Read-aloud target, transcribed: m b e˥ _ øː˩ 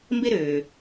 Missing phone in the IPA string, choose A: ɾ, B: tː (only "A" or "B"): A